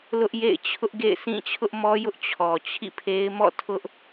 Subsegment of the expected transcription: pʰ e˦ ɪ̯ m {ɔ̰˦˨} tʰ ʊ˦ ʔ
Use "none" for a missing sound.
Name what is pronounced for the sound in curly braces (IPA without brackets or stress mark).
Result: ɔ̰˦˨